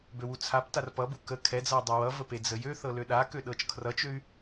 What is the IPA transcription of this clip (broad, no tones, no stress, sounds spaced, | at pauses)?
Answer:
b ø w u t͡sʰ a p t a r p ʌ b u k ə kʰ ɛ d͡z ʌ y̯ dˤ a w ʌ v ə p e d͡z ə j ø θ ɤ l ø ɗ a k ø ɗ ɤ t͡ʃ kʰ r ʌ t͡ʃ ø y̯